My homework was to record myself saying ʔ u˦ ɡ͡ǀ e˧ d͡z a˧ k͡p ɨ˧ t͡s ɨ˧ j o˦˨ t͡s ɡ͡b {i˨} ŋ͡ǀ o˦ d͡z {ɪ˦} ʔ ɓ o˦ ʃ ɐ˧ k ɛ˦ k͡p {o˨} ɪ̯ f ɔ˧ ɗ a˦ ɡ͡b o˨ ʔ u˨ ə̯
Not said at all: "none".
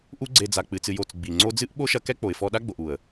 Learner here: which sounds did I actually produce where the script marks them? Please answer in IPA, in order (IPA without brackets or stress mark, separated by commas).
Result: i˨, ɨ˦, o˨